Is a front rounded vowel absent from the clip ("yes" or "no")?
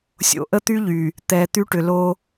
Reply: no